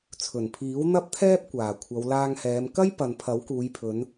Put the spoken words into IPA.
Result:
t͡sʰɵ˨˩npʰiː˨˥w n̪ɐ˥p̚t̪ʰɛː˥p̚kʷaː˨˩ kʷʰɐ˨˧wlaː˧ŋhɛː˨˧m kɐ˥jpɐ˨n pʰɐ˨˥wkuː˨˧jpʰɵ˨˧n

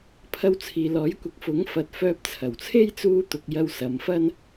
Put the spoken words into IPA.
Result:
pʰɐ˧wt͡sʰiː˨lɔː˨˥jkʷɐ˨˥k̚ fʊ˨˥ŋ fɐ˨˥t̚fœː˧p̚ t͡sʰɐ˨˩wt͡sʰe˥j t͡suː˧t̪ʊ˨k̚ jɐ˧wsɐ˨˧mfɐ˥n

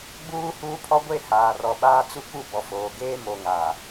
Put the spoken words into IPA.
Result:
ɡ͡buː˦huː˦pʰɔ˦ ɡʷe˦˨ haː˨rɔ˨ ɓaː˦ t͡su˦ku˦˨bɔ˨ foː˨ɡeː˦mo˨ ŋaː˨

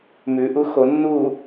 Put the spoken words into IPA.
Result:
mʉʔu xonːu

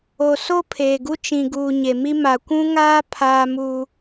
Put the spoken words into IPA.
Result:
o˨ so˦ pʰeː˨ɡu˦ t͡ʃĩ˨ɡuː˨ ɲe˨mi˦ ma˨kʷũ˦ŋaː˦ pʰaː˦mu˦

